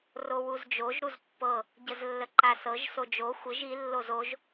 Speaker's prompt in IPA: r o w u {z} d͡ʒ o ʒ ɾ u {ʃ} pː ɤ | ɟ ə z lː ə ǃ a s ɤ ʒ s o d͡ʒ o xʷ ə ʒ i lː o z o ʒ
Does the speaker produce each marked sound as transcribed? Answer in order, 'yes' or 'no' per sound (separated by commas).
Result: yes, no